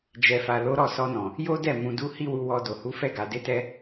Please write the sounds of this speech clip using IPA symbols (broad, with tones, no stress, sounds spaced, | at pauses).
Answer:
d͡ʒ ɛ˨ f a˨ l o˨˦ ɾ ɔ˦˨ s ɔ˧ n ɔ̃˨ | j o˦ d ɛ˦˨ m ũ˧ d u˦ h i˦ w u˧ w ɔ˧ d o˨ h u˨˦ f ɛ˦˨ ɡ a˨ d e˨˦ t ɛ˧